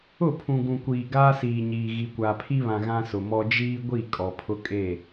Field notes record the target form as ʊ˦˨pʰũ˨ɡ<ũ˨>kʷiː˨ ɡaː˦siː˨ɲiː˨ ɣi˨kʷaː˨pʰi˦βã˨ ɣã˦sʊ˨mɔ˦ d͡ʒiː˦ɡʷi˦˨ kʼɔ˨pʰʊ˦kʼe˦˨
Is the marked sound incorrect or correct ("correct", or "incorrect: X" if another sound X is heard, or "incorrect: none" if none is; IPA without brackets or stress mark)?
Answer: correct